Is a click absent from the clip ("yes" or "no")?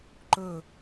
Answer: no